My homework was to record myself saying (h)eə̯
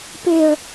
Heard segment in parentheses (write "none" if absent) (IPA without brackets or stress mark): p